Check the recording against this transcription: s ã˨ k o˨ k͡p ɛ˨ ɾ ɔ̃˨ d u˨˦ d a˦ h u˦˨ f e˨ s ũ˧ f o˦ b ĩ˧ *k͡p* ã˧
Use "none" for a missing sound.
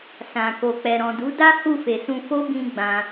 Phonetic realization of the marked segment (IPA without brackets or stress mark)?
ɡ͡b